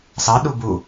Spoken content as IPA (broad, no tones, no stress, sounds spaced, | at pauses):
s ɑ ɗ u b u